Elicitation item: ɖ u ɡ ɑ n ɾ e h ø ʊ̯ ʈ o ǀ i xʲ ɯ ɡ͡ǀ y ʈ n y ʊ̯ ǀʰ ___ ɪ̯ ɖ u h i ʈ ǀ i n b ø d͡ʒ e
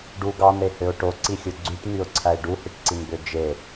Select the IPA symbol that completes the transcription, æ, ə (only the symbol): æ